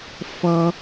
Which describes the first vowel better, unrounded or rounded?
unrounded